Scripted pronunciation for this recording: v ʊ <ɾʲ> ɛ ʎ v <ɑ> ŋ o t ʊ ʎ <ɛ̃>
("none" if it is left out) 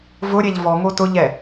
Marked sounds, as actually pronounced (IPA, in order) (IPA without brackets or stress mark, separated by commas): ɾʲ, ɔ, ɛ